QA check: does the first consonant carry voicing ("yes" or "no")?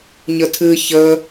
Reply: yes